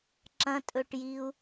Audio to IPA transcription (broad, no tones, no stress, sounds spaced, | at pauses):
ǁ ɐ̃ tʼ ɵ ʈ j i u̯